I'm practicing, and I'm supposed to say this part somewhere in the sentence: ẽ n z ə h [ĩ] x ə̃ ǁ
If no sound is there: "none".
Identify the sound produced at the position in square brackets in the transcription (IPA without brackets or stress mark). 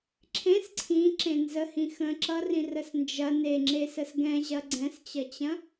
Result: ĩ